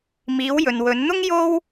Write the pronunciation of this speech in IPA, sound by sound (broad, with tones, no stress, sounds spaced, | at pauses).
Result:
m iː˨˧ w j ɵ˨ n w ɵ˨˧ n n̪ ʊ˥ ŋ j o˥ w